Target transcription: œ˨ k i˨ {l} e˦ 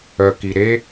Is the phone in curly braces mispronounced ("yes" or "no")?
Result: yes